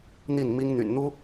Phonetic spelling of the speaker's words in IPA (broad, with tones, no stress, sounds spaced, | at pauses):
n̪ i˥˩ n m i˥ ŋ n̪ y̰˨˩ n n̪ u˥